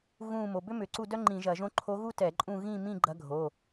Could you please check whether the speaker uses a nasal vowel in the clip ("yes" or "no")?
yes